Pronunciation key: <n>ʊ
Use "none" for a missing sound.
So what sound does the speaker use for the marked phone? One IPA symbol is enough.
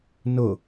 n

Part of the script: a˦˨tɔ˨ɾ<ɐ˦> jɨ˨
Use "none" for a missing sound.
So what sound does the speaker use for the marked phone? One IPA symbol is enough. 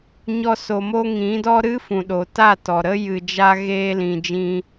ə˦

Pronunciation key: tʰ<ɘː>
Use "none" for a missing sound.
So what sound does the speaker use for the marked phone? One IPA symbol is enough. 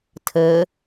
ɘː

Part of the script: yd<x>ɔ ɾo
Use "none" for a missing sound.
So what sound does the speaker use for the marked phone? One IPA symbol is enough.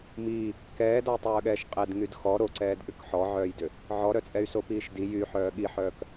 x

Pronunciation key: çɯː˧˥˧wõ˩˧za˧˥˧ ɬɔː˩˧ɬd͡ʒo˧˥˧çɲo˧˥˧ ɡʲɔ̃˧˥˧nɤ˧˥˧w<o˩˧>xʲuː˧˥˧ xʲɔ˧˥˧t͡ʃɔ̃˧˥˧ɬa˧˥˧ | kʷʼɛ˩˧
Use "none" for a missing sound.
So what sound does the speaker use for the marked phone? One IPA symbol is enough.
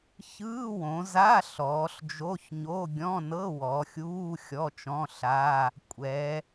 ɔ˩˧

